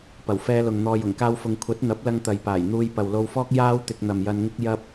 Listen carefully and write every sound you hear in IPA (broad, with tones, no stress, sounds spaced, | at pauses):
p ɐ˨˩ w f ɛː˧ l ʊ˨ ŋ n̪ ɔː˧ j ʊ˨˩ ŋ k aː˥ w f ʊ˧ ŋ kʷʰ ɐ˨˥ t̚ n̪ ɐ˨˥ p̚ l ɐ˧ ŋ t̪ ɐ˨ j p aː˨˩ j n̪ uː˧ j p ɐ˨ w l o˧ w f ɔː˥ k̚ j aː˥ w t̪ ɪ˧ k̚ n̪ ɐ˨ m j ɐ˧ n ŋ ɪ˥ k̚ j ɐ˥ p̚